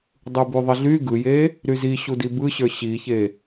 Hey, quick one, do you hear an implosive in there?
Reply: no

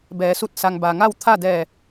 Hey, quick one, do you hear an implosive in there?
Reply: no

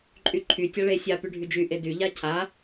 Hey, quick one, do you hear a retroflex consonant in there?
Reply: yes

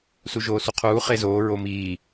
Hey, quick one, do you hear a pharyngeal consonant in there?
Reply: no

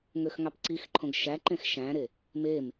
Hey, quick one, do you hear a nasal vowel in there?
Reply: yes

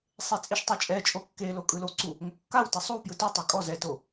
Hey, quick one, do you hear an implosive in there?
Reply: no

